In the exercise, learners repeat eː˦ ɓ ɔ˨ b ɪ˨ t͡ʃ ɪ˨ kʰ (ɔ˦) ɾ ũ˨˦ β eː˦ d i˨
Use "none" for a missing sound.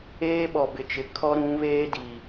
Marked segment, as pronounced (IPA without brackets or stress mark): ɔ˦